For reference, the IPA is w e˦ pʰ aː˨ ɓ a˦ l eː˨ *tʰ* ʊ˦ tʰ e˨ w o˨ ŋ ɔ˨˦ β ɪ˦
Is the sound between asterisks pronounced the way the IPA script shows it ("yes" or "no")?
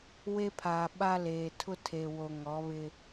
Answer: yes